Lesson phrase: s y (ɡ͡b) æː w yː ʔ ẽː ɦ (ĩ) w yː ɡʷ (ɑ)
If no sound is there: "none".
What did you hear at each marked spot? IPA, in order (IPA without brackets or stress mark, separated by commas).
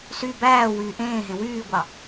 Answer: b, ẽ, ɑ